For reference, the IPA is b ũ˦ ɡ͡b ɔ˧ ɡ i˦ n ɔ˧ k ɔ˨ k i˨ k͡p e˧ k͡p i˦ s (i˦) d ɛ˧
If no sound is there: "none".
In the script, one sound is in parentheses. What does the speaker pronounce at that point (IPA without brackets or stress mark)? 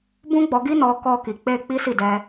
i˦˨